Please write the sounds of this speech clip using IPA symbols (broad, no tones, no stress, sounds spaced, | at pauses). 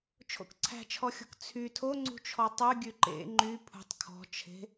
t͡ʃʰ o̰ k ǀʰ æ̤ t͡ʃʰ ɔ xʲ o̤ k t͡sʰ y tʰ o ŋ͡ǀ ṳ t͡ʃʰ ɔ tˤ ʉ ɡʲ ʉ ǃ ḛ ŋ͡ǃ y pʰ ṳ tˤ kʰ ɔ̤ t͡ʃʰ e̤